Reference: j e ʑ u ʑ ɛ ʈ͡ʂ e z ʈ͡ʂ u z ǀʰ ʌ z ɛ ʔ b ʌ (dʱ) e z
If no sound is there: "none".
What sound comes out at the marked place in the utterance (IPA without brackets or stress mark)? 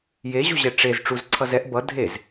dʱ